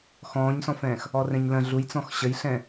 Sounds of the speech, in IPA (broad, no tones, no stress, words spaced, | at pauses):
xɔ̃ːɲsɔ̃fɛ̃ːx | ɔrɛ̃ɲlə̃ ɮujt͡sɔ̃x ɕəjɬɛ̃